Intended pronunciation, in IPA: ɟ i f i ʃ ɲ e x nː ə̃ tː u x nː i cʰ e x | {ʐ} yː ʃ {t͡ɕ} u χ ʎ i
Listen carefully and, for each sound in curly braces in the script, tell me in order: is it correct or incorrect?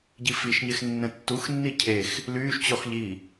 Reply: incorrect: l, correct

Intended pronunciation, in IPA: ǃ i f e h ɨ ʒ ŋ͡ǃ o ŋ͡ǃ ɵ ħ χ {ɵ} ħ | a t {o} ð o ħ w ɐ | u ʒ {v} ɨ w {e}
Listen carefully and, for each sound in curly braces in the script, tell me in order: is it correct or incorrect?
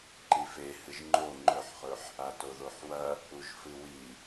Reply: correct, correct, incorrect: f, incorrect: i

